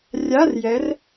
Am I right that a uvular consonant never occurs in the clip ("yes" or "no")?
yes